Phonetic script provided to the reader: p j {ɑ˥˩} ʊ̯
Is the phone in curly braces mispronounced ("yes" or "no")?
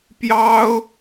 yes